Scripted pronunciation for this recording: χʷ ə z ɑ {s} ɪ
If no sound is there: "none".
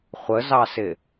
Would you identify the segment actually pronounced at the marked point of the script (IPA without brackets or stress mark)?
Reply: s